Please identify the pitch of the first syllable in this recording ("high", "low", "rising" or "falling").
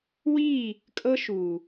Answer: falling